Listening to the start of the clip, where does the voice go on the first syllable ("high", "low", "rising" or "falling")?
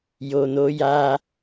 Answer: low